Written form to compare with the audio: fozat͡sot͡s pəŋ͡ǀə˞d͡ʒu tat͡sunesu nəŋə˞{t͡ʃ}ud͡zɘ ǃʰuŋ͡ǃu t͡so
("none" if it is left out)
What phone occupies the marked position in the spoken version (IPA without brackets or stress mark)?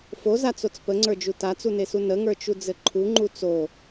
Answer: t͡ʃ